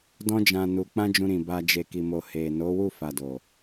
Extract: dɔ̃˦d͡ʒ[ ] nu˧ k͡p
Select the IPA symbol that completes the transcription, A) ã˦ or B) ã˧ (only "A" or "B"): B